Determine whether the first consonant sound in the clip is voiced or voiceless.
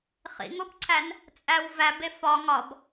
voiceless